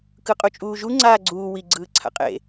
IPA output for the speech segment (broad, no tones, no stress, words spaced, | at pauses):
kɯqʼut͡ʃʼuːʒu ŋ͡ǀaːɡ͡ǀuː wi ɡ͡ǀɯːǀʰa̰qʼḛ